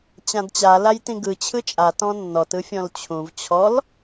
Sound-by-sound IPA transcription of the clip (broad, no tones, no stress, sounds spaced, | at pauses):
t͡ɕ ã d t͡ɕ a l a j t ĩ ɡ ɯ t͡ɕʰ ɯ t͡ʃʼ a t ɔ̃ nː ɔ t ɯ fʲ ɔ̃ l t͡ɕʰ ũ v t͡ɕʰ ɔ l